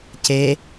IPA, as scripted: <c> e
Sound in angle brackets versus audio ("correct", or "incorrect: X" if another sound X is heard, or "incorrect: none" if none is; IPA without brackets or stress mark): correct